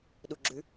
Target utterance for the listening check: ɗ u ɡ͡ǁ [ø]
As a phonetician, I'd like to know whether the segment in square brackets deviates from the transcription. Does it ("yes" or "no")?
yes